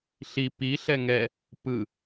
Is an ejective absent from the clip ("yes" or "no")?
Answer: yes